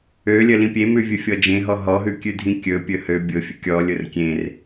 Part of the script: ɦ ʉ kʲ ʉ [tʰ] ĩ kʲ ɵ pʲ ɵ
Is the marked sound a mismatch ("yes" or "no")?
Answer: yes